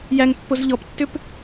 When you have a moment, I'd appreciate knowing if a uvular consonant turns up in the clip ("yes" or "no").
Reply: no